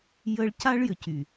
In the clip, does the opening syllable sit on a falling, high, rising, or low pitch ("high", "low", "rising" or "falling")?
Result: high